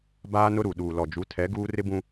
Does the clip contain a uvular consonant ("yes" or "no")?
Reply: no